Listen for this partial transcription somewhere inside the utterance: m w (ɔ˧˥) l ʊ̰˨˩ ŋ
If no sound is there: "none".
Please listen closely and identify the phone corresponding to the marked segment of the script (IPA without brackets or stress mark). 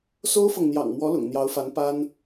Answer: ɔ˧˥